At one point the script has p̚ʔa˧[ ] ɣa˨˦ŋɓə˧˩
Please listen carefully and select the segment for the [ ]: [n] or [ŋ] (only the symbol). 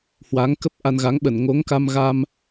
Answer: n